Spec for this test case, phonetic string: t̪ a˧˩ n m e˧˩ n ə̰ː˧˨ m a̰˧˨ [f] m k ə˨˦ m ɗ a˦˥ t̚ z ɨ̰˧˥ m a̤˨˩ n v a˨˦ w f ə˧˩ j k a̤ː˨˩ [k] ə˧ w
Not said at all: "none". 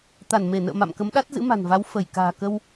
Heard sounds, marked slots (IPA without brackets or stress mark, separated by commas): none, k